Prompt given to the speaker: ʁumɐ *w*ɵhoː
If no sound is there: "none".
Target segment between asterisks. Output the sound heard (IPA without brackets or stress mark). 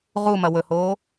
w